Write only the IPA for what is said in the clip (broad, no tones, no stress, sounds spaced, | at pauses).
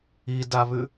i d a β ʉ